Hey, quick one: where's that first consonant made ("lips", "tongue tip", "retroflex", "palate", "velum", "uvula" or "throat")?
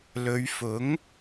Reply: tongue tip